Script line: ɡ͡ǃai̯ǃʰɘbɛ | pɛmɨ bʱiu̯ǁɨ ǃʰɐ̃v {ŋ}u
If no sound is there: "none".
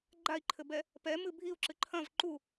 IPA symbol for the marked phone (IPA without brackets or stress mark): ǃ